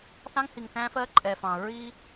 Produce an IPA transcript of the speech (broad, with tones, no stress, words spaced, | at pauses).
θɑ̃˦ŋhi˨ŋθæ̃˦fɜ˦ ǃʼɛ˨fɑ̃˨ ɹi˦